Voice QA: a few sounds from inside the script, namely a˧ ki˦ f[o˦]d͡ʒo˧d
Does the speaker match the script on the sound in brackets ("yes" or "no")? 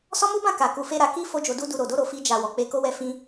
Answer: yes